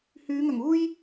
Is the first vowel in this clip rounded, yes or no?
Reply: yes